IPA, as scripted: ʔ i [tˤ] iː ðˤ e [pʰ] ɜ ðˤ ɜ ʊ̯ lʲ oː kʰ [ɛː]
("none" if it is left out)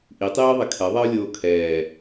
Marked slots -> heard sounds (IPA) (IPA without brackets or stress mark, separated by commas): tˤ, kʰ, ɛː